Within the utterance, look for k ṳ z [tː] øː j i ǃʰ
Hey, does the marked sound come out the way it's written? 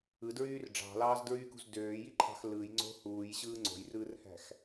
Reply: no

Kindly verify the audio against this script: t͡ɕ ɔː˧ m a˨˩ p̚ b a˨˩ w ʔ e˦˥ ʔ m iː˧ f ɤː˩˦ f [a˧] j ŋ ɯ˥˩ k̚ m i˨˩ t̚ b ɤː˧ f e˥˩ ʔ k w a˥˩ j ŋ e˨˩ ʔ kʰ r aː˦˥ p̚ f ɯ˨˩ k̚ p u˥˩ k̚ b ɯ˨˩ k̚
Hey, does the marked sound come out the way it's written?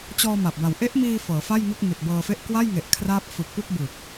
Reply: no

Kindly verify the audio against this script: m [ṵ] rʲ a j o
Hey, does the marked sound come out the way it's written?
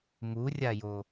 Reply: no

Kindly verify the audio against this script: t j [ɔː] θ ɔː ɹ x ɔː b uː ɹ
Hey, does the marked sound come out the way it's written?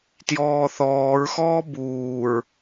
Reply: yes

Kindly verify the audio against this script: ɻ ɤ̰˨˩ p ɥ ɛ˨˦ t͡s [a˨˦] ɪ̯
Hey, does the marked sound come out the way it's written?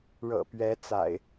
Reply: no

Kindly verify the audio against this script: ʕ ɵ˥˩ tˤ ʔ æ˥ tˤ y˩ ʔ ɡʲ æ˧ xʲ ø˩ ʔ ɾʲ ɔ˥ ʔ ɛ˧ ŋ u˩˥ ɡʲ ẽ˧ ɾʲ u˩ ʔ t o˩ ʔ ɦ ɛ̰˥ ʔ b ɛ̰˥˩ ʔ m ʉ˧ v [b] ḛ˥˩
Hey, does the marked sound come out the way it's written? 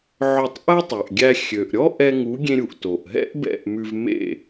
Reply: no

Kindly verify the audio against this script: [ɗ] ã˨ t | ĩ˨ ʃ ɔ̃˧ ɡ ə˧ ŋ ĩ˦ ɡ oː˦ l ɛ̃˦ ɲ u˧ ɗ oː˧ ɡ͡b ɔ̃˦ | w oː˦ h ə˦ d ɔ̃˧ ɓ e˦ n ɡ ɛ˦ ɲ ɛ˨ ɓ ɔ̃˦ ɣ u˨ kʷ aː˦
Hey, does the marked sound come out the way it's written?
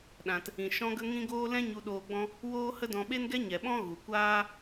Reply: yes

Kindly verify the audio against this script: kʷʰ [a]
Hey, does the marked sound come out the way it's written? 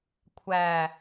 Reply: no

